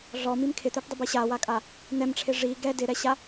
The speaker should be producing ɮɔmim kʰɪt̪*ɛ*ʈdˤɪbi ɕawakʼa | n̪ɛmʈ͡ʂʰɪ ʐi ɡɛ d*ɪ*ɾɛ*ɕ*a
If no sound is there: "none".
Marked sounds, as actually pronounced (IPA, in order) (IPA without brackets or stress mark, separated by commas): ɛ, ɪ, ɕ